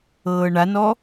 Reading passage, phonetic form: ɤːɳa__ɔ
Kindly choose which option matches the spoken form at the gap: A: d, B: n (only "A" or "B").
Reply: B